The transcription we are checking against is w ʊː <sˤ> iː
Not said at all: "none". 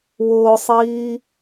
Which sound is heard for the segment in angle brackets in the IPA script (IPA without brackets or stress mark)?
sˤ